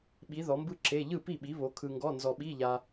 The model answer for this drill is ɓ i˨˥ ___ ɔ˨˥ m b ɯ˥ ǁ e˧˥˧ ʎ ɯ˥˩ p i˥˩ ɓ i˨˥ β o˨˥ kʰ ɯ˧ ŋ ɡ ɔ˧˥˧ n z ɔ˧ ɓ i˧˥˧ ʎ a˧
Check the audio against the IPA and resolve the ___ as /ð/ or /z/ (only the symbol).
ð